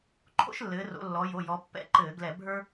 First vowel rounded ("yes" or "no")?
yes